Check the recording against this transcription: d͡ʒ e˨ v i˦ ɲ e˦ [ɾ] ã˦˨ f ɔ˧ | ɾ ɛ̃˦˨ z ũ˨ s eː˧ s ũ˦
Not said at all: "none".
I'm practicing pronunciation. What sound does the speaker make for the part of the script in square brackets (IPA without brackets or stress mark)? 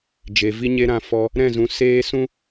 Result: ɾ